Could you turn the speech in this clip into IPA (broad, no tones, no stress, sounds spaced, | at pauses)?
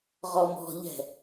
ʁ ɔ m ɔ̤ ʎ ɛ̤